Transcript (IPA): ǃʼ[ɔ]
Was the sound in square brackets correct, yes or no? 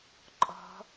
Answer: no